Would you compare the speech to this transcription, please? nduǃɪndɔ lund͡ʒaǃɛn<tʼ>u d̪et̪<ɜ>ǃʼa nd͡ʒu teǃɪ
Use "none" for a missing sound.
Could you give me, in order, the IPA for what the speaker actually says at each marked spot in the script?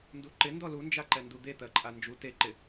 d, ɜ

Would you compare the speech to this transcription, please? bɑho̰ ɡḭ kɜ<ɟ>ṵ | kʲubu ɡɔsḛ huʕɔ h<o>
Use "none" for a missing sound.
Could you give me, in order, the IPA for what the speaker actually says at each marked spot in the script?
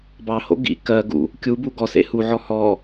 ɡ, ɔ

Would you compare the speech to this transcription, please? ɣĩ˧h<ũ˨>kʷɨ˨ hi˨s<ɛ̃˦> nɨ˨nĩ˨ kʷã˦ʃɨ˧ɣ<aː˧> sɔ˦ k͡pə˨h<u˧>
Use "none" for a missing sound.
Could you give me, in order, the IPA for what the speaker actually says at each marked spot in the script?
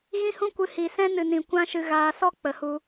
ũ˧, ɛ̃˦, aː˧, u˧

